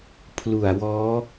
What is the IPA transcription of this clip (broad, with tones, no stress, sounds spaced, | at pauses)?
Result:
pʰ l u˨˩ a̯ w ɔː˦˥